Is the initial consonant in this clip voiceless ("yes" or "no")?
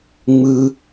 no